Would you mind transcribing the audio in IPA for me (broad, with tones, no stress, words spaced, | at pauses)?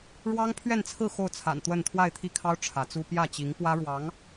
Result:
ɻwɑ˥ŋpʰɥɛ˥˧nt͡sʰɹ̩˥˧ xo˥˩ʊ̯t͡sʰa̰˨˩n t̪wə˥˧n t̪ʰwa˥˧ɪ̯t̪ʰi˥˩kʰɑ˥ʊ̯ ʈ͡ʂʰä˧˥t͡su˥ pjä˥˩ t͡ɕi˧˥ŋ pwä˥ɻwɑ˧˥ŋ